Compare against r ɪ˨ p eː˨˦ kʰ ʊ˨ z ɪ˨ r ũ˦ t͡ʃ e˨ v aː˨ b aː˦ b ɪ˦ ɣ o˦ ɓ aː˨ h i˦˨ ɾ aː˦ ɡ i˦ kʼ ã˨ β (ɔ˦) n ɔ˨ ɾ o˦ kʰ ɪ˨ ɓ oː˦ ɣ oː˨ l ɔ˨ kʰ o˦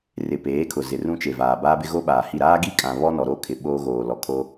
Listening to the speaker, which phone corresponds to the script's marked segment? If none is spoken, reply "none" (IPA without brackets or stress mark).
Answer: ɔ˦